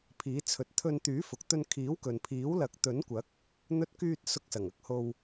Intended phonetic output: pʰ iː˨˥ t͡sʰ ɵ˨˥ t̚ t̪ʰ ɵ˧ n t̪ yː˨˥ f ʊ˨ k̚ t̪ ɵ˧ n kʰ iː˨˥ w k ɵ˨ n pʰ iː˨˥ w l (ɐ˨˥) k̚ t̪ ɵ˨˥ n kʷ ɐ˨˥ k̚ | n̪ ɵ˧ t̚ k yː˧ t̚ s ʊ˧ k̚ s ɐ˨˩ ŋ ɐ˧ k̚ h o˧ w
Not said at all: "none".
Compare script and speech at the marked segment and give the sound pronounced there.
ɐ˨˥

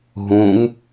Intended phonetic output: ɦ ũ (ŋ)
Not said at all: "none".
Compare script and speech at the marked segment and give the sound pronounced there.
ŋ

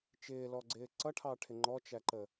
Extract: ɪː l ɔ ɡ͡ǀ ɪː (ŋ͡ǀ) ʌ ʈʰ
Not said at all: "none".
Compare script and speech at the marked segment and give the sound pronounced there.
ǀ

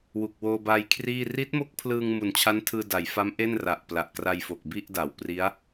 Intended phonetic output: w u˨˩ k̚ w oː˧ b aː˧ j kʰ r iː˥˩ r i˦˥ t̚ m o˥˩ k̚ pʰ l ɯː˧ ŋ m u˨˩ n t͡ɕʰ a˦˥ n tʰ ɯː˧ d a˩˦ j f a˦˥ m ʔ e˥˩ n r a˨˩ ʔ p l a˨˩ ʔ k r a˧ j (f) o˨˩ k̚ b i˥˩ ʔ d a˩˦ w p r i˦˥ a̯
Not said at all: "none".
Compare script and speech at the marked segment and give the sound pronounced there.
f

